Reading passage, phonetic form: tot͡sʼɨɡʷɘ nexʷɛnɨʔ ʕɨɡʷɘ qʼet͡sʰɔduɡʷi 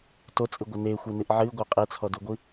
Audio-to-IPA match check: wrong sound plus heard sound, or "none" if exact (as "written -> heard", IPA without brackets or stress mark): none